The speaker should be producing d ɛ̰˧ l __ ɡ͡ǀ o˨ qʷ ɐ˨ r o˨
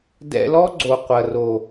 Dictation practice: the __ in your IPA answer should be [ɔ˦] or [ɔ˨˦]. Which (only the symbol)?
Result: ɔ˦